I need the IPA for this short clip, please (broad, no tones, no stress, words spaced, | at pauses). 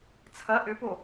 t͡sʰɐ ʔʏpo